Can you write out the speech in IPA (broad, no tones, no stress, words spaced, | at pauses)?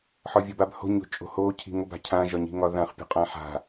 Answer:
ħɒvʲɒbabho̤ ɲo̤t͡ʃʼo̤ho cʰi̤ŋob a̤cʰã ʒɒɲi̤ŋɒðãχ pʲo̤qʼãħa̤